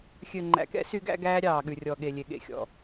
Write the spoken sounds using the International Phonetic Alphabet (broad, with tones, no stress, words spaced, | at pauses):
xʲø˨ŋ͡ǃæ̰˨kɛ̰˦ sy˦ɡæ̰˦ɡæː˦ ɾʲɑː˨ɠʉ˨rʲɔ˨ ɠe˨lʲe˨ ɠḛ˨xʲɔ̰˨